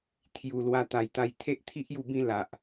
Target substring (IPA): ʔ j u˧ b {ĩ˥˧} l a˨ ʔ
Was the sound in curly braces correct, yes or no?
yes